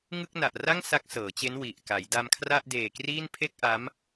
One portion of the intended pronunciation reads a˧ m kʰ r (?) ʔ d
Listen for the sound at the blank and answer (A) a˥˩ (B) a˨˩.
A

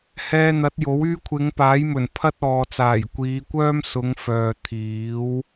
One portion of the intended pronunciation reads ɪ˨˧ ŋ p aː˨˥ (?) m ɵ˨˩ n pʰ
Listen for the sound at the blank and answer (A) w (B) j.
B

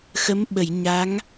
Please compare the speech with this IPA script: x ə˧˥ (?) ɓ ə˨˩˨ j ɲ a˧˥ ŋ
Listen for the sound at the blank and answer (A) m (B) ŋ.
A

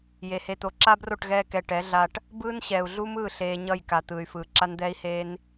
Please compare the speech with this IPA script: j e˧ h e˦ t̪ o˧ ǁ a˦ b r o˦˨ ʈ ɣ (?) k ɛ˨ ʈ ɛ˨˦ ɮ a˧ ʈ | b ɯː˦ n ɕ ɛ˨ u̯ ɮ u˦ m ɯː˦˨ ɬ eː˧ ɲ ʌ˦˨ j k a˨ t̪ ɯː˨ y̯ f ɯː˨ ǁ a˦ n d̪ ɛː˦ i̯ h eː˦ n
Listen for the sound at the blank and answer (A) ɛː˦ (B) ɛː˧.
B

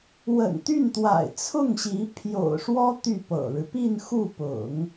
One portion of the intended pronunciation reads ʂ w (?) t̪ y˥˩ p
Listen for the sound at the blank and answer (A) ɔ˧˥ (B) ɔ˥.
B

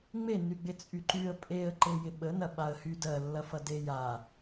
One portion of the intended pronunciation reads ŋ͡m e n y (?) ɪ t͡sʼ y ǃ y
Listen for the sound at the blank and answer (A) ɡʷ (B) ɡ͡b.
B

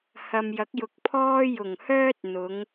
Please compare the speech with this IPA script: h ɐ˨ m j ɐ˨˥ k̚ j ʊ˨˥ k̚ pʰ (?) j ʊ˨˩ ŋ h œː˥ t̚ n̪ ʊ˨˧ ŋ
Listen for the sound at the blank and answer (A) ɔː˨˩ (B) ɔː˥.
B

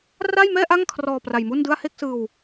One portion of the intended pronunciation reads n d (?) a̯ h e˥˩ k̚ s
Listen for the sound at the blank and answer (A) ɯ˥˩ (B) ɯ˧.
A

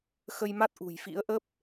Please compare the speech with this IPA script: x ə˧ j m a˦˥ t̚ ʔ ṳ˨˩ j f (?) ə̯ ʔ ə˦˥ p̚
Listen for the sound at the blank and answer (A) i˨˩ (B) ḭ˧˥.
B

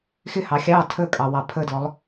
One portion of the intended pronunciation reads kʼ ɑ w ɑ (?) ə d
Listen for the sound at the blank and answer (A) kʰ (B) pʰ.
B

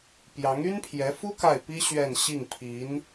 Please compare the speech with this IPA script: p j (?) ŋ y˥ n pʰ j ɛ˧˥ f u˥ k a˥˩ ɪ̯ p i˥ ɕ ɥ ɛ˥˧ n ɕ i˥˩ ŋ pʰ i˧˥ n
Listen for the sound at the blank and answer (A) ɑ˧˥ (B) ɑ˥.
A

